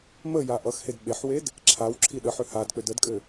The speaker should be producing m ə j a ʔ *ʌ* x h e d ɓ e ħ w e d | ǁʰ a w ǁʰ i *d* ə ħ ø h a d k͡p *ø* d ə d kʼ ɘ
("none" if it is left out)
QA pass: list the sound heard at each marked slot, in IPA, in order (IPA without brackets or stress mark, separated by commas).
ʌ, ɗ, ø